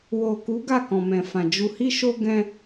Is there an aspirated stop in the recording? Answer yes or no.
no